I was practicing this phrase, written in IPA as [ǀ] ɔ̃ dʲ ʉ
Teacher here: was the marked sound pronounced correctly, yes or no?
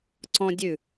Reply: yes